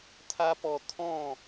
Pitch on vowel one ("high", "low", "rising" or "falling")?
high